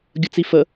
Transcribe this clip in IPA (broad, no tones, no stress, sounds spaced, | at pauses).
ɡʲ ə t͡s i f ə